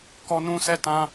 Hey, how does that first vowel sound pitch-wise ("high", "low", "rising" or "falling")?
high